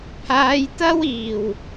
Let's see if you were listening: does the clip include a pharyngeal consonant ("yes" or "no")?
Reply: no